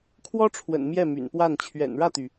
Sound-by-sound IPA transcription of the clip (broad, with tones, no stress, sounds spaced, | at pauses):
kʰ w ɔ˥ ʈ͡ʂʰ w ə̰˨˩ n m j ɛ˥˩ m y̰˨˩ n p w a˥˩ n t͡ɕʰ ɥ ɛ̰˨˩ n ɻ ä˥˩ t̪ y˩